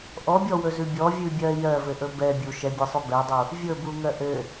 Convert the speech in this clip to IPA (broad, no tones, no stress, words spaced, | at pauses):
ʔɔbʲɔwɵzʉ bʲɔvʲʉbʲɜ jɜvɘʔɵ bɛ bʲu ʃɛbʲesˤʉ bɛdˤu | vʲɵbuŋɜ ʔɘ